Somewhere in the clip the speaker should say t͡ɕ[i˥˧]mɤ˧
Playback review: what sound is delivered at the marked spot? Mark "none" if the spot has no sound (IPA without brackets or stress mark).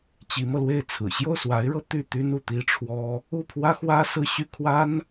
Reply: i˧˥